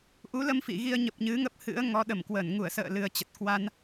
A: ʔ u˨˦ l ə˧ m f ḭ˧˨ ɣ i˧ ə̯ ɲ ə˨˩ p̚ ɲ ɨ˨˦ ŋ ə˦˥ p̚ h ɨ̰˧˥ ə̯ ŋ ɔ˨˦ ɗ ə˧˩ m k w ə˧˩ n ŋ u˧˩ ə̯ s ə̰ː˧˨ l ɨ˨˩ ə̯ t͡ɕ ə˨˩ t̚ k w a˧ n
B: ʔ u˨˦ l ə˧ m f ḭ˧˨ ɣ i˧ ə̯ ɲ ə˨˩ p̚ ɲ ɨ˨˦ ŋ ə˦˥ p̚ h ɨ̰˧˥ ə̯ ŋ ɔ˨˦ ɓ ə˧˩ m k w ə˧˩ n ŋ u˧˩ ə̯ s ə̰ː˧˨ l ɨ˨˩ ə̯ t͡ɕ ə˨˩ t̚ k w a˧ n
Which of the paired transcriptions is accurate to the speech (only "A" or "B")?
A